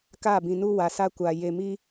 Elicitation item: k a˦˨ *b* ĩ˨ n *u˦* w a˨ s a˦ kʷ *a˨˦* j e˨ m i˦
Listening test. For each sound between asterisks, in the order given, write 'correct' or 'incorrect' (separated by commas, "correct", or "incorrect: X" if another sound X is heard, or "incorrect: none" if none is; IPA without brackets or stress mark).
correct, correct, incorrect: a˨